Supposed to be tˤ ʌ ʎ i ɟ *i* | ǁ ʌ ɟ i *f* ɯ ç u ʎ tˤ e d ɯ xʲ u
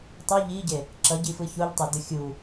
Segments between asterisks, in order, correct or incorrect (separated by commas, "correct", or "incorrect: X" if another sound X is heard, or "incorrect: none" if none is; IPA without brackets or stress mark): incorrect: e, correct